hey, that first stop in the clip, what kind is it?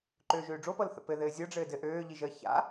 click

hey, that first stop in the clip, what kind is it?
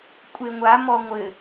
ejective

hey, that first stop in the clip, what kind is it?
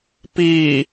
plain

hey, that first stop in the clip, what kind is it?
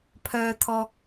aspirated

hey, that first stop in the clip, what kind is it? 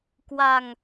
plain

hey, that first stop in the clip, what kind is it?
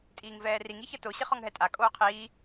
ejective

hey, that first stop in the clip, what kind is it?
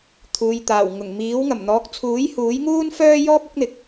aspirated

